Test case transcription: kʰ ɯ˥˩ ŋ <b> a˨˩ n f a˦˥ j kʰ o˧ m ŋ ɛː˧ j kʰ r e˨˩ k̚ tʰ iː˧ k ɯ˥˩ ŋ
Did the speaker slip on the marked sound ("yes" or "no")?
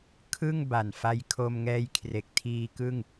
no